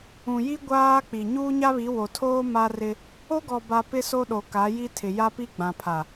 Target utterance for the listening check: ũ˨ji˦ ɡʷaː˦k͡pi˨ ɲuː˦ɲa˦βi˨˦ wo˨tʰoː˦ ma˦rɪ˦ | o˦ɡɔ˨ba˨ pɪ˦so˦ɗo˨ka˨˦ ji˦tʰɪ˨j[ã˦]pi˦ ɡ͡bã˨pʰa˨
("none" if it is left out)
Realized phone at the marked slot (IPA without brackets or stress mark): a˦